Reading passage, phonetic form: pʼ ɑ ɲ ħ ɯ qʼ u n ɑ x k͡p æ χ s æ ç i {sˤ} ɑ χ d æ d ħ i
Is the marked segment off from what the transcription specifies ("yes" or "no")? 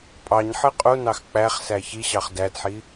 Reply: yes